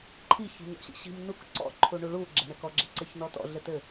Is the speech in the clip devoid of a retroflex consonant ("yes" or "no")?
no